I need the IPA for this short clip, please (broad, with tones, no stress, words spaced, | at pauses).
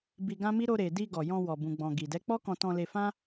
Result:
bi˧ɡã˦mi˦ ɾo˧ɾe˨ di˧ɡɔ˨ jɔ̃˧wɔ˨ bũ˨ɡ͡bɔ̃˨ ɡi˨ dɛ˨˦k͡pɔ˦kɔ̃˧ tɔ̃˧le˧fã˦